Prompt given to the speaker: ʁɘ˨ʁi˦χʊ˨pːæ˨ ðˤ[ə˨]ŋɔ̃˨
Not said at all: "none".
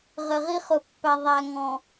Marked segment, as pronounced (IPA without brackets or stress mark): æ˨